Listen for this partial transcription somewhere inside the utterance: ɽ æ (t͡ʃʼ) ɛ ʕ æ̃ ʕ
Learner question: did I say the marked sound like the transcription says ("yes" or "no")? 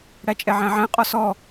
yes